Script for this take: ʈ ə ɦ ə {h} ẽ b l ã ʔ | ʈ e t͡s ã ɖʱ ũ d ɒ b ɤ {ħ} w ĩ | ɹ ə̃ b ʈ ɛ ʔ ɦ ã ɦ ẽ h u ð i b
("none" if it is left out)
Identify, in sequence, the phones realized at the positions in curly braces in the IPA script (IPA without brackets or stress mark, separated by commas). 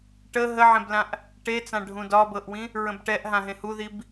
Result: ʕ, ʔ